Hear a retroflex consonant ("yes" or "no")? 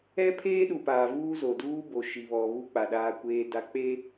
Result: no